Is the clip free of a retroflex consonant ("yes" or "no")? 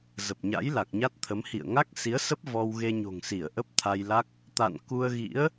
yes